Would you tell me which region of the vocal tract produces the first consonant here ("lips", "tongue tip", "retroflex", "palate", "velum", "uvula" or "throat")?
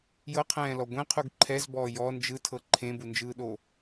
palate